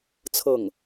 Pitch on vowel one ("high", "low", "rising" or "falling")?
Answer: falling